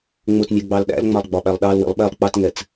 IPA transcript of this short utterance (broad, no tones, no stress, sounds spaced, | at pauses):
ŋ͡m ʊ t nʲ ɛ ɡ͡b ɑ l ɗ æ̰ l ŋ͡m ɑ lˠ ɡ͡b ɒ ɓ æ lˠ ɗ ɑ l w ḭ lˠ ɓ ɛ lˠ k͡p ɑ t ŋ ɛ t͡s